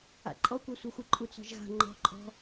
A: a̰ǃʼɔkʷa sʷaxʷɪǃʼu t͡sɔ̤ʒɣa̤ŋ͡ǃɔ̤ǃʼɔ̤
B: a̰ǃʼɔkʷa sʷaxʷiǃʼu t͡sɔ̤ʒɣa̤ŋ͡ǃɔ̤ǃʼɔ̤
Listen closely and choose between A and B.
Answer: A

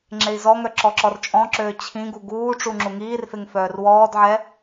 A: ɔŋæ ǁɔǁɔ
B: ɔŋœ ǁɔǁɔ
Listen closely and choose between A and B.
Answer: B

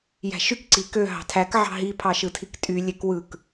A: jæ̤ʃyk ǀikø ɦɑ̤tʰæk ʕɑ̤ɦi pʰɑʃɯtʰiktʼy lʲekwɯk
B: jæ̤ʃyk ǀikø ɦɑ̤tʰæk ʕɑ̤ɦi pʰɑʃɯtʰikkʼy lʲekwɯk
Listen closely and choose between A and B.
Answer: A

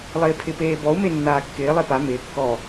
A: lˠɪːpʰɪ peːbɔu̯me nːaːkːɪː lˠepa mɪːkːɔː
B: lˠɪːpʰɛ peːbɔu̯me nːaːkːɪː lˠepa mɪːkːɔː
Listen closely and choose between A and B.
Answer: A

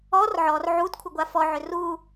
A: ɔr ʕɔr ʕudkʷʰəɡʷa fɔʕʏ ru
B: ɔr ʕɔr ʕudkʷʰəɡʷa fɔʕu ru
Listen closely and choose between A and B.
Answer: A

